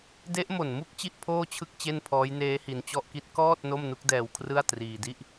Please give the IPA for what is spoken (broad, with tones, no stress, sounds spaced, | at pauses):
d e˦˥ ʔ m o˨˩ n m u˥˩ k̚ t͡ɕ i˥˩ ʔ pʰ oː˥˩ t͡ɕʰ ɯ˥˩ k̚ t͡ɕ e˥˩ n pʰ ɔː˦˥ j n eː˦˥ h i˧ n t͡ɕ ɔ˥˩ ʔ k i˥˩ t̚ k ɔː˥˩ t̚ n o˥˩ m n u˦˥ k̚ d ɛː˧ w kʰ r ɯ˥˩ a̯ t r iː˧ d i˥˩ ʔ